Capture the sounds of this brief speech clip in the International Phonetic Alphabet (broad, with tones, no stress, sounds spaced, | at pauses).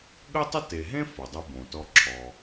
ɠ ə˥ tˤ ə˥ t e˨ ɦ ẽ˥ f o˩ dˤ u˨ b õ˩ t ɔ˨ ǁʰ ɔ˩